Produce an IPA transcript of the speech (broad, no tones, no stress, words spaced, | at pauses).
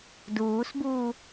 duːsbuː